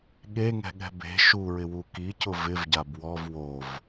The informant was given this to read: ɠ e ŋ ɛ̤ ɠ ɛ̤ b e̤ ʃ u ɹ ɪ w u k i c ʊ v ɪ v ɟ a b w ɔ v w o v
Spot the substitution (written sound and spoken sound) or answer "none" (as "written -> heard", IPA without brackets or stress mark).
none